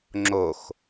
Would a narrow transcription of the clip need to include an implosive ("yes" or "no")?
no